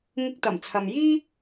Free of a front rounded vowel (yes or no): yes